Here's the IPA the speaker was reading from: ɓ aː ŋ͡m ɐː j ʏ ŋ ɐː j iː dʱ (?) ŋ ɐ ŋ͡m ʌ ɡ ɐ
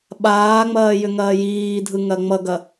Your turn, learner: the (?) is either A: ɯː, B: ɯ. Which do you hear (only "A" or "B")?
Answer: B